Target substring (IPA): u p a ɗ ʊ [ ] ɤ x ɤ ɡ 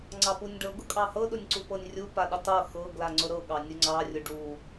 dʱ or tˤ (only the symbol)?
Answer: tˤ